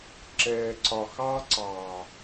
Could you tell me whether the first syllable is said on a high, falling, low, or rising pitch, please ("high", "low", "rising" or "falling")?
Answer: low